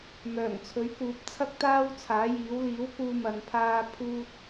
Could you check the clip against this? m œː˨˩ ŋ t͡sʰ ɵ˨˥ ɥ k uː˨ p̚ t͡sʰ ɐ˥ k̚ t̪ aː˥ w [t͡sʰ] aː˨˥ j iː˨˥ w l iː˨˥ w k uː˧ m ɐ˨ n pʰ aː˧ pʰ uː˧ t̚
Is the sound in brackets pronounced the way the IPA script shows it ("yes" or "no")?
yes